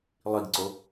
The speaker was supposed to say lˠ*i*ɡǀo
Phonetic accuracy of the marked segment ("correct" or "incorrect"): correct